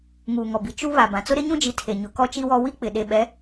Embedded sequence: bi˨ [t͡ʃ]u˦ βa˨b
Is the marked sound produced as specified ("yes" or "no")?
yes